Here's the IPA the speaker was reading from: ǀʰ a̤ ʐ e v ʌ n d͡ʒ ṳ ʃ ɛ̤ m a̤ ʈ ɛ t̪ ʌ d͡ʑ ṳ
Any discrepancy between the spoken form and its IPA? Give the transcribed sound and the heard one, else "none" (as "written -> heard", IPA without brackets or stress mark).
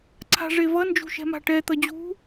none